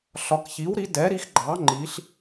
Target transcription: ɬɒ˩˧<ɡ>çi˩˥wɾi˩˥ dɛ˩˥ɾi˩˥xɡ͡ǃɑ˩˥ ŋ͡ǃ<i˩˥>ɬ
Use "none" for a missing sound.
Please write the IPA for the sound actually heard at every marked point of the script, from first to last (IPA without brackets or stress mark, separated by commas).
k, i˩˧